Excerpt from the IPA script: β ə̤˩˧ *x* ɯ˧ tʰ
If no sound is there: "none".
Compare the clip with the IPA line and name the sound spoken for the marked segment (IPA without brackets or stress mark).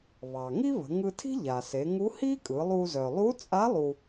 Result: ŋ